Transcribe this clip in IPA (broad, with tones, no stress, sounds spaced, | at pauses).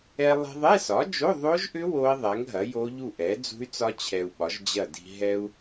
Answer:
ɛ˧ lˠ i̤˧ ðˤ ɛ˧˥˧ s ɒ˩˥ d͡ʒ o˧˥˧ ðˤ o˦˥ ʒ ʔ ʏ˦˥ w o˦˥ i̯ ðˤ ɛ˩˥ ŋ ɦ ɐ˩˥ j o˦˥ ʎ u˥˨ ʔ ɛ˩˥ d͡z ṳ˦˥ y̯ t͡s ɒ˦˥ t͡ɕʰ ɛ˧ u̯ ɓ ɒ˩˥ ʒ d͡ʑ ɐ˥˨ d i̤˧ ɦ ɛ˧ u̯